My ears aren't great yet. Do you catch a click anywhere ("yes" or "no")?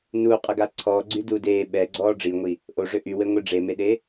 yes